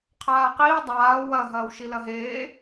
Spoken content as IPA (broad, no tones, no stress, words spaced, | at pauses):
qʰaːqiː dˤaː wɐ ɦɐːwʃilɐɦeː